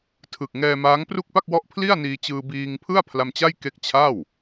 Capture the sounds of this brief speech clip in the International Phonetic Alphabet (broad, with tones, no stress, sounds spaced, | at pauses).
tʰ ɯ˨˩ k̚ ŋ ɛː˧ m aː˦˥ ŋ p r u˥˩ k̚ p a˥˩ k̚ w ɔ˦˥ ʔ pʰ l i˥˩ a̯ n iː˧ t͡ɕ ɯː˧ b iː˧ ŋ pʰ ɯ˥˩ a̯ pʰ l a˧ m t͡ɕ a˥˩ j k e˦˥ k̚ t͡ɕʰ a˥˩ w